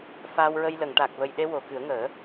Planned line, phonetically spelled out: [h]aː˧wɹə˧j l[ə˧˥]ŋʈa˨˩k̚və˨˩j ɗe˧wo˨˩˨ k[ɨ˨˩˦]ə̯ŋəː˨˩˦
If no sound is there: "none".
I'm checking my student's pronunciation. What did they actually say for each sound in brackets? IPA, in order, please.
f, ə˨˩˨, ɨ˨˩˦

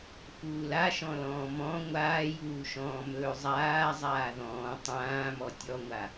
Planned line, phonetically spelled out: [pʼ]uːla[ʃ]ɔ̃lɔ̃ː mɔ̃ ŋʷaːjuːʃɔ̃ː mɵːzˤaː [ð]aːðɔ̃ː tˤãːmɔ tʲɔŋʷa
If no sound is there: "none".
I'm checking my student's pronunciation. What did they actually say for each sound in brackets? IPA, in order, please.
f, ʃ, zˤ

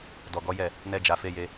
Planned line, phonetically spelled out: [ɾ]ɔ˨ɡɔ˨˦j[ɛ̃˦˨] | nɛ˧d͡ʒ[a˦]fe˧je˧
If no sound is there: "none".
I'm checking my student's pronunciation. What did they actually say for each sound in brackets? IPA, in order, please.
d, ɛ˦˨, a˨

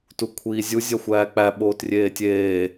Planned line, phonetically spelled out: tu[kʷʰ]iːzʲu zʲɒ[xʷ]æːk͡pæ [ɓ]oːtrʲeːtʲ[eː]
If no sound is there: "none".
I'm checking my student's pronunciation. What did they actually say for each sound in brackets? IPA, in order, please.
kʷʰ, xʷ, ɓ, eː

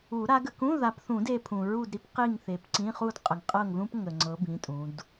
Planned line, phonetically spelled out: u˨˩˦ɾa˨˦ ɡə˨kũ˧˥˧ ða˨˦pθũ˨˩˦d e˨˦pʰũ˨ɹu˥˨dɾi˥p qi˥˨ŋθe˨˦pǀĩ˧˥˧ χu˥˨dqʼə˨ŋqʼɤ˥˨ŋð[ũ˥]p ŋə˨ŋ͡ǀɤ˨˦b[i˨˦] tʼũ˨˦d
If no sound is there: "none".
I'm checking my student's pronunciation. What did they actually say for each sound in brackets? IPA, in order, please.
ũ˥, ĩ˨˦

